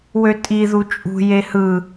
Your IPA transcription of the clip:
w ø tʼ i ð u t͡ʃʼ ṳ j e h ɯ

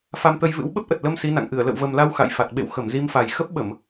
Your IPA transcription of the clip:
f a˧ m t̪ ə˧ j v ɨ̰˧˥ w ɓ ə˦˥ p̚ ʔ ə˨˩ t̚ l ə˧ m s i˨˦ n a̰˧˨ ŋ ʔ ɨ˧˩ ə̯ l ə̰˧˨ w v ə˨˩ m l a˧ w x a̰˧˨ j f a˨˩ t̚ ɓ ḛ˧˨ w x ə˧˩ m z i˧ m f a˨˩ j x ə˦˥ p̚ ɓ ə˧˩˨ m

